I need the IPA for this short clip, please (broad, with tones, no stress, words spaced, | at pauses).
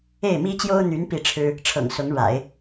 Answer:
e˥˩ɪ̯mi˥t͡ɕjo˥ʊ̯n̪y˧˥n pi˥˩ʈ͡ʂʰɻ̩˥ | ʈ͡ʂʰɤ̰˨˩ŋsʊ˧˥ŋɻa̰˨˩˦ɪ̯